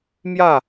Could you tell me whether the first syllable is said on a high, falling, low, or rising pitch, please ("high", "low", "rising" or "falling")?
falling